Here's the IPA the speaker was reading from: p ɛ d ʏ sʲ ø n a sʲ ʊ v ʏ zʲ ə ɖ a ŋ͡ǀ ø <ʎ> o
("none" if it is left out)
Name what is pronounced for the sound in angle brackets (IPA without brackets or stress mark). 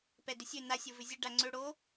ɽ